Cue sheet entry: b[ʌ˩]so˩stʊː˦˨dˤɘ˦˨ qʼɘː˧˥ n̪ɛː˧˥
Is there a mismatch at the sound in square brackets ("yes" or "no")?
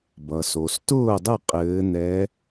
no